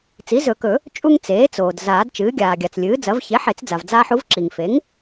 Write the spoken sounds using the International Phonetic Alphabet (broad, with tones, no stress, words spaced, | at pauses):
t͡si˩˥zɵ˨˩˦kɵ˨˩˦ | t͡ʃʼu˦ŋ t͡seː˩˥t͡soː˩d zaː˨˩˦dt͡ʃɨː˩˥ɡʲaː˩ɡʲa˩t͡s lʲɨː˩˥d͡zɐ˩˥v çe˩˥ ħe˨˩˦t͡sd͡za˩v d͡zaː˦ħu˩˥v ǁi˩ŋfe˩˥ŋ